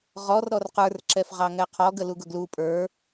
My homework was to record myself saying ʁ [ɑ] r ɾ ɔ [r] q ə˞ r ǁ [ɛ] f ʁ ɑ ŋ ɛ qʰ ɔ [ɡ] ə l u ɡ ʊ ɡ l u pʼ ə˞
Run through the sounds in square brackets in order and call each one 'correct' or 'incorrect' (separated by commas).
incorrect, correct, correct, correct